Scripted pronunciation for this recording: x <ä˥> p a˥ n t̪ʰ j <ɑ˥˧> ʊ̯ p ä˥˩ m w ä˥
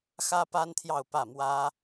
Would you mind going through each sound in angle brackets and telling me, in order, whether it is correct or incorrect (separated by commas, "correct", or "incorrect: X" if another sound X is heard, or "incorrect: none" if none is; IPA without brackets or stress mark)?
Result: correct, correct